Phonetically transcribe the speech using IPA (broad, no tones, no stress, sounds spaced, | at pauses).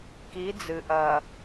k i d͡z ɨ ʔ ɐ